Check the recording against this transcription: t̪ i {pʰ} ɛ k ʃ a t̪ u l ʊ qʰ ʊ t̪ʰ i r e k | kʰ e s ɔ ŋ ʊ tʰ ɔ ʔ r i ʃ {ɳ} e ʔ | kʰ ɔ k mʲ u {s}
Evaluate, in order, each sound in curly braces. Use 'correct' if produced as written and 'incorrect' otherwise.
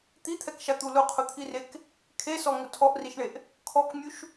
incorrect: t̪ʰ, correct, incorrect: ʃ

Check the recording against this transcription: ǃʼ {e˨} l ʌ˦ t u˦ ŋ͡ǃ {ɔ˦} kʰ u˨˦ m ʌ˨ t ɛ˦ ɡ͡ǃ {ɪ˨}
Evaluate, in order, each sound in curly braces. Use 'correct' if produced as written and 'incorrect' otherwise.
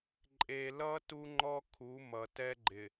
correct, correct, correct

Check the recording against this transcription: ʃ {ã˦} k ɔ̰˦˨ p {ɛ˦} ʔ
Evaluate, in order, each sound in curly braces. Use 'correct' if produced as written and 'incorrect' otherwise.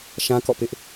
correct, incorrect: ɪ˦

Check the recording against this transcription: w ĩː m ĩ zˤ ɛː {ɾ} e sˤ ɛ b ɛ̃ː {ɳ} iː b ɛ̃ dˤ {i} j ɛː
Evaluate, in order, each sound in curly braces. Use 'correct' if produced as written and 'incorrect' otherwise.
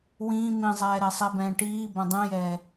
correct, incorrect: ʈ, incorrect: ĩ

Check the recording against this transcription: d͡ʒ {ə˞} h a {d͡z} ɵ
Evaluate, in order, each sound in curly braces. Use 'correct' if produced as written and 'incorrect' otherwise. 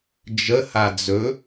incorrect: ə, correct

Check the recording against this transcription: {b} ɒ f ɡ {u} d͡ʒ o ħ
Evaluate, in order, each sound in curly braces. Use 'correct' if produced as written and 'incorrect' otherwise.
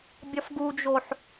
incorrect: bʲ, correct

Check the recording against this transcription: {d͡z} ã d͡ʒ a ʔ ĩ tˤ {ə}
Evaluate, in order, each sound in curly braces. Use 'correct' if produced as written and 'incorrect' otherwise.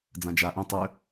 correct, incorrect: ø

